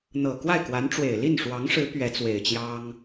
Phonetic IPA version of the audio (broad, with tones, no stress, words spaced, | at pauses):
n̪ɤ˨˩kwa˥˩ɪ̯kwa˧˥nʈ͡ʂwe˨˩ɪ̯ li˥˩nʂwɑ˧˥ŋʂɻ̩˧˥ pɥɛ˧˥t͡swe˨˩ɪ̯ t͡ɕjɑ˥ŋ